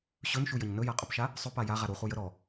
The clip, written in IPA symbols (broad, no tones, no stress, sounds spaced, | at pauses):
ɕ ɵ n ʃ u j ə ɲ n ɵ j a qʼ ɵ p ʃ a | sˤ ʏ p a j a ʁ a ɾ u χ u j ə ɾ ɔ